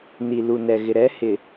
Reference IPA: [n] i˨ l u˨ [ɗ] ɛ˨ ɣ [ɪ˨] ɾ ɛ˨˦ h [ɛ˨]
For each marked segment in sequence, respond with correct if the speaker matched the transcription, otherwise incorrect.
correct, incorrect, correct, incorrect

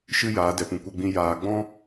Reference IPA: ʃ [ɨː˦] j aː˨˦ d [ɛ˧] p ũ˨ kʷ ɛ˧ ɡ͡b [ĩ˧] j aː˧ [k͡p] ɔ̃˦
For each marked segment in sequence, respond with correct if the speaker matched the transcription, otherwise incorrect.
incorrect, incorrect, correct, incorrect

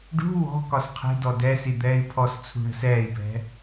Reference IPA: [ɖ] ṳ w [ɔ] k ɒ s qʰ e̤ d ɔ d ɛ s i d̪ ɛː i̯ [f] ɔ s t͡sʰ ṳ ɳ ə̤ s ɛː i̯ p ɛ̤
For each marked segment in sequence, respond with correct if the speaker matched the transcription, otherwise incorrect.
correct, incorrect, incorrect

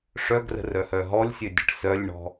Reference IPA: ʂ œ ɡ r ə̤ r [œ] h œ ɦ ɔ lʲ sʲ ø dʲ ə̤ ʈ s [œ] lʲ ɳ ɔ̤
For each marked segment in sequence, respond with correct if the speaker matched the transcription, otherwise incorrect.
correct, correct

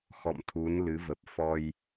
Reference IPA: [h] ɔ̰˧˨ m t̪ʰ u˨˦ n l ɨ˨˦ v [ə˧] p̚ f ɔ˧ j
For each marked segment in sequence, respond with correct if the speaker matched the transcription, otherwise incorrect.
incorrect, incorrect

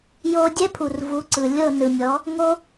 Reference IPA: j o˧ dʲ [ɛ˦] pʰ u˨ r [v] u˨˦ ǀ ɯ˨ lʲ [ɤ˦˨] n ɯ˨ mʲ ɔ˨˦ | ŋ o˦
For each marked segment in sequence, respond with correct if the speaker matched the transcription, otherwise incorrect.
correct, correct, correct

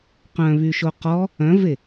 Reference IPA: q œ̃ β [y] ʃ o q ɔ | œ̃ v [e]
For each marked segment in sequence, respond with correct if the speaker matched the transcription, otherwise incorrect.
correct, correct

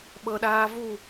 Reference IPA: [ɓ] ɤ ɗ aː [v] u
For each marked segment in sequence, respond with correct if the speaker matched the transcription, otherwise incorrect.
correct, correct

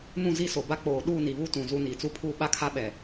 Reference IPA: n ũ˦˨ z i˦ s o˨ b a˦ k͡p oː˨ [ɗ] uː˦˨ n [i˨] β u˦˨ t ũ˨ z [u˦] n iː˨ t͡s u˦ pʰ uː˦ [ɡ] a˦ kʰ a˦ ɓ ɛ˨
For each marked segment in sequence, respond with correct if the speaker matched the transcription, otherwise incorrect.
correct, correct, correct, incorrect

